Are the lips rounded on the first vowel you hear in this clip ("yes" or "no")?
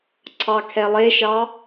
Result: no